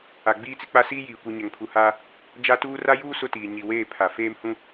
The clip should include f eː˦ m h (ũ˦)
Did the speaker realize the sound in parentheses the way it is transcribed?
yes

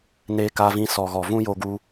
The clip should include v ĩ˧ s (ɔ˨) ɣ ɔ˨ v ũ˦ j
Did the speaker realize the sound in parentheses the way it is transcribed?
yes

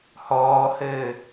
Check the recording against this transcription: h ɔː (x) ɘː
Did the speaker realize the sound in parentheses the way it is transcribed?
no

